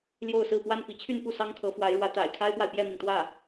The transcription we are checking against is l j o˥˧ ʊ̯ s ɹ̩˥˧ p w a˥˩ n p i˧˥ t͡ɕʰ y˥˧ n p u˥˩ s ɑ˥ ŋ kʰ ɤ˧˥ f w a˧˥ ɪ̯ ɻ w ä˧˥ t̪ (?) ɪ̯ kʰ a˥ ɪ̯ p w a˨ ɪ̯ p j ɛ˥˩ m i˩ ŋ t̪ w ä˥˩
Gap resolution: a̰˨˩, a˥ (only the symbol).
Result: a̰˨˩